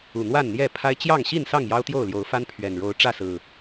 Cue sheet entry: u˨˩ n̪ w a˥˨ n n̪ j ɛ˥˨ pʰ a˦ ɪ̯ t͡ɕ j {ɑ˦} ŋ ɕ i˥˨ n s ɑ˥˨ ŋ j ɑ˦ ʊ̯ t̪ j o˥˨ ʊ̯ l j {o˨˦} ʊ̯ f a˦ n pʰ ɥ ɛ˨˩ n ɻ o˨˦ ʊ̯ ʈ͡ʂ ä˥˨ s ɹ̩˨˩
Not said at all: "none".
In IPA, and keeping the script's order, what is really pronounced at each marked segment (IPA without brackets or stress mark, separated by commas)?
ɑ˥˨, o˨˦